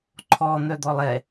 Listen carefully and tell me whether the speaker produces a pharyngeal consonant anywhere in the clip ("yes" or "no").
no